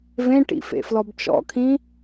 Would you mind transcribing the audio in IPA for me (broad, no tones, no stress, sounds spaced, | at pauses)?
v ẽ ʈ ḭ f ḛ f l ɔ b t͡ʃ ɔ̰ kʰ ĩ